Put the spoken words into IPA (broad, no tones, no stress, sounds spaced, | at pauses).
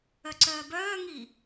œ ǀ œː b œː ŋ i